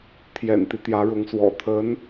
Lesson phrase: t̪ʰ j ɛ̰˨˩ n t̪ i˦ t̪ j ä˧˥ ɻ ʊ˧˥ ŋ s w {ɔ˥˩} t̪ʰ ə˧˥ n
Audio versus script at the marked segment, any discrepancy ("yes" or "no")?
yes